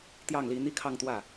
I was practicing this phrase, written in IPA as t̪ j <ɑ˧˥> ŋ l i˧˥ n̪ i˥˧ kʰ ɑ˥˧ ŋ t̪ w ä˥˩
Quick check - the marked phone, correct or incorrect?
incorrect